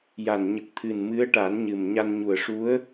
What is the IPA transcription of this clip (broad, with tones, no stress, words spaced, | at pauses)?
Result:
ja˨˩n ɲə˨˩k̚t̪ʰɨ˨˩nmɨ˧˥ə̯ʈa˨˩˦n ɲɨ˨˩m ɲa˧nɲu˨˩ə̯ʂu˧˥ə̯